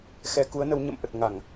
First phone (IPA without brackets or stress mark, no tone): x